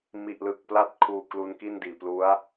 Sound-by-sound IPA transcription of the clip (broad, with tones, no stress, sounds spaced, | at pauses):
m i˨˩ ʔ l ɯ˨˩ k̚ p l a˦˥ t̚ kʰ uː˧ k l u˧ n k i˥˩ n d iː˨˩ p l u˦˥ a̯